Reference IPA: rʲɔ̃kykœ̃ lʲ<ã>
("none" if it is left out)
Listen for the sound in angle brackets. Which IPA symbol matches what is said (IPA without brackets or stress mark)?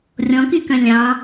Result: ɑ̃